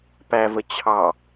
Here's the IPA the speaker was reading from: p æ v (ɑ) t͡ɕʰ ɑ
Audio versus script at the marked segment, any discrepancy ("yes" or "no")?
yes